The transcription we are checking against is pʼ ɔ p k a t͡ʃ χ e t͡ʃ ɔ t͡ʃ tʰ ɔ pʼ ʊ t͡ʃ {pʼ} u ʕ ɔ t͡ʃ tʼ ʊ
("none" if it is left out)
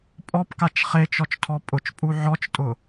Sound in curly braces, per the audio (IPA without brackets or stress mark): pʼ